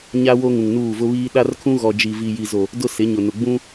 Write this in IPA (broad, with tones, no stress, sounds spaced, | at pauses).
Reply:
ɲ a˦ w o˦ ŋ ũ˨ ŋ n uː˦˨ v ʊ˦ β iː˦ ɗ a˦ r kʰ ũ˦ ɣ ɔ˨ d͡ʒ i˨ v i˨ j i˨ z o˨ | d ʊ˦ s ɪ˨˦ ɲ ʊ˨ n ʊ˨ ɡ͡b ũ˦